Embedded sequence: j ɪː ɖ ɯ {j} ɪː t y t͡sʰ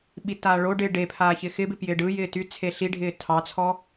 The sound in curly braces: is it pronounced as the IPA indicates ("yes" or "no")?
yes